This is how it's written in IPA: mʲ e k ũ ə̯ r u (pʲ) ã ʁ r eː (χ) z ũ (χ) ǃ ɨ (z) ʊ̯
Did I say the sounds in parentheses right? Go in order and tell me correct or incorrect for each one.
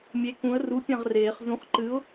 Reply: correct, correct, correct, incorrect: none

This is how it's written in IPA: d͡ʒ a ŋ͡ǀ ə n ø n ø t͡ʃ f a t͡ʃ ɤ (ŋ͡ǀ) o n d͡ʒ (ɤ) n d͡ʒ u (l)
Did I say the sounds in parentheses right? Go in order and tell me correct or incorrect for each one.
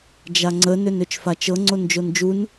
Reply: correct, incorrect: o, incorrect: n

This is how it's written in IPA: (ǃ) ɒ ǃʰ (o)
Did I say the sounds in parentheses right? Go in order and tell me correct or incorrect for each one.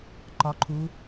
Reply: correct, incorrect: u

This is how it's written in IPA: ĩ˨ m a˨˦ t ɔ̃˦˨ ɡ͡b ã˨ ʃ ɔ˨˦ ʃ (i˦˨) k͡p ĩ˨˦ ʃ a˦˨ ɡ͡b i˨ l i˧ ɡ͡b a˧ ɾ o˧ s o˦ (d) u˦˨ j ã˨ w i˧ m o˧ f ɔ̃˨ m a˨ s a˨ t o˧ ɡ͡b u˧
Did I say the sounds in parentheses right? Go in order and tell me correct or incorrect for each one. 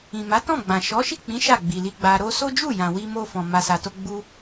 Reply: correct, incorrect: d͡ʒ

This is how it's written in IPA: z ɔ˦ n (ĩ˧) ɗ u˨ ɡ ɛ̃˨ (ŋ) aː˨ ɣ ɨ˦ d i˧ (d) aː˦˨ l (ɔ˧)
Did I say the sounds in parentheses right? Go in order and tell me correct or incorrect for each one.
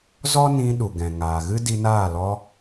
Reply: correct, correct, incorrect: n, correct

